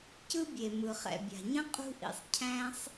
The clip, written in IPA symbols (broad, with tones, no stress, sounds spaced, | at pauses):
c ɯ˥ bʲ e˩ m ɯ˩ χ ɛ̰˩ bʲ a̤˩ ɲ ə̃˥ qʼ ṳ˥ ʔ ḭ˩ sˤ cʰ æ̃˥ sˤ